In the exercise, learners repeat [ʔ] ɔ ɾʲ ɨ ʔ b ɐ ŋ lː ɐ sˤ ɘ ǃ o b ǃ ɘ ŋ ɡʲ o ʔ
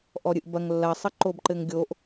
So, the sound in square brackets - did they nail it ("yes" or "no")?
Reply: yes